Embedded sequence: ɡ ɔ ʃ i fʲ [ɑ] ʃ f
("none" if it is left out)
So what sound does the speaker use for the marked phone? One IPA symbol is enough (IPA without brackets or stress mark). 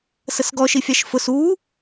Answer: ɑ